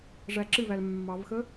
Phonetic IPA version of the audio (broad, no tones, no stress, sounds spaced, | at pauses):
ʐ æ ǁ ɨ v æ l mː ɑ v x ə